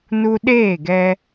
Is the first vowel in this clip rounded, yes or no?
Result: yes